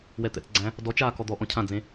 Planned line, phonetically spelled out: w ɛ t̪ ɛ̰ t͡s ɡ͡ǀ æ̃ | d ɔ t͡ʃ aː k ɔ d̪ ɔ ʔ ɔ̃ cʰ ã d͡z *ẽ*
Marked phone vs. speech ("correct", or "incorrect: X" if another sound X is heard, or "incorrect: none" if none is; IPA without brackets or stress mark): correct